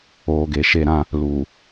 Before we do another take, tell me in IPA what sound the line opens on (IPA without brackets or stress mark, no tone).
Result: oː